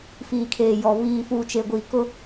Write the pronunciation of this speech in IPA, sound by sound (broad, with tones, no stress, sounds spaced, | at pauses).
f iː˨ kʰ eː˨ j ɔ˨ β iː˨ f uː˨ t͡ʃ e˨ ɡʷ iː˨ k ʊ˦